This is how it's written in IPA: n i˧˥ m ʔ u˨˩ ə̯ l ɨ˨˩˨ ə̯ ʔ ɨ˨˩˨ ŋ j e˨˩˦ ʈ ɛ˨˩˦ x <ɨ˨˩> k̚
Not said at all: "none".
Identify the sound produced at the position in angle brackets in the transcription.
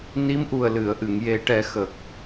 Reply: ə˨˩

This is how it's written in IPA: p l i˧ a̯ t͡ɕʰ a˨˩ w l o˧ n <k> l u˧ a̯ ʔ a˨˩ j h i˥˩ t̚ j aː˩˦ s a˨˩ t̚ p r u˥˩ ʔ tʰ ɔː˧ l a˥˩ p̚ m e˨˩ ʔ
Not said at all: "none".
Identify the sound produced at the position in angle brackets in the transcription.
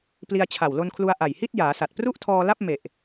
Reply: kʰ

